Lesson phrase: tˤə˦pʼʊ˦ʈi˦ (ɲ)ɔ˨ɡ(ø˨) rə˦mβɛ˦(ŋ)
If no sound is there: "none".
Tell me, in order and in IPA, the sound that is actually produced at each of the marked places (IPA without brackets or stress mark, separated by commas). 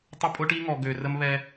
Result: ŋ, ø˨, none